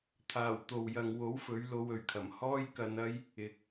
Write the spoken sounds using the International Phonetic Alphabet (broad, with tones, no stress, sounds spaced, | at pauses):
t̪ʰ aː˨˩ w t̪ o˨ w j ɐ˨ ŋ w o˨˥ w f ɵ˨˥ ɥ l o˧ w ɵ˨ ɥ kʰ ɐ˨˩ m h ɔː˥ j k ɐ˧ n ɐ˥ j | ɪ˨˥ k̚